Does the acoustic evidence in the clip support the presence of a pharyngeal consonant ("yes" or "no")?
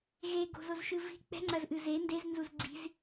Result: no